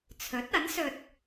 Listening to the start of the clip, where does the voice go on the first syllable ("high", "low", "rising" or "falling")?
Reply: rising